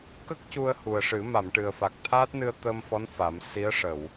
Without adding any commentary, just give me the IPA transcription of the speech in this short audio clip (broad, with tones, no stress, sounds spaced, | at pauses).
k ə˦˥ k̚ c u˧ ə̯ h u˨˩ ə̯ ʂ ɨ˨˩˦ m a˨˩˨ m ʈ ɨ˨˩ ə̯ f a˨˩ k̚ t̪ʰ aː˦˥ t̚ n ɨ˧ ə̯ t̪ əː˧ m f ɔ˧˥ n f a˨˩˦ m s i˧˥ ə̯ ʂ ə˨˩˨ w